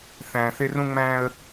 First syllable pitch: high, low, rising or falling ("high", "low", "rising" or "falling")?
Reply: low